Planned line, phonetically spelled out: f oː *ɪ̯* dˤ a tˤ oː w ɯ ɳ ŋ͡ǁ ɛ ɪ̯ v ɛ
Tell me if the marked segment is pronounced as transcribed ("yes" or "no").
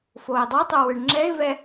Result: yes